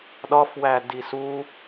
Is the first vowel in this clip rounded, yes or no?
yes